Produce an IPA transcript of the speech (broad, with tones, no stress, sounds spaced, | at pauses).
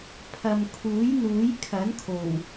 pʰ ɐ˨ m kʰ uː˨˥ j n̪ uː˨˥ j kʰ ɐ˨˥ n kʰ o˨˩ w